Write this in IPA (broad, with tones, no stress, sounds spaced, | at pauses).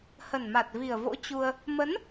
h ə˨˩ n m a˨˩ t̚ v i˨˩ ə̯ v o̰˧˥ t͡ɕ u˧ ə̯ | m ə˨˦ n